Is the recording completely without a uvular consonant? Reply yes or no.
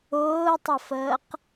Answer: no